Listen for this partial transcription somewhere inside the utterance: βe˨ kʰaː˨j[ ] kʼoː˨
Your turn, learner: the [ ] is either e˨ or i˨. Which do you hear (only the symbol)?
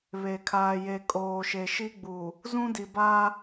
e˨